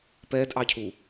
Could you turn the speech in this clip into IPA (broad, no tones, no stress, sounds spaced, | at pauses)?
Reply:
p ɛ d ʔ ɑ cʰ u